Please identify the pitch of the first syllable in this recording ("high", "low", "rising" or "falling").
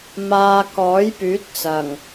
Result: low